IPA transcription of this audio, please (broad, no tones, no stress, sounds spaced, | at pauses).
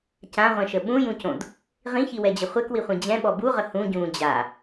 c ã ʁʷ ɛ̃ ʃ ə ɓ ũ j ũ c õ d | ʁ ĩ ç i w ɛ d͡ʑ ə χʷ ɛ k w i χʷ ĩ d͡ʑ ɛ̃ ɓ ɔ b u ʁ ə h ũ ɟ ũː d͡ʑ a